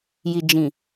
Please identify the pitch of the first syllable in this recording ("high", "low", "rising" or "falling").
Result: low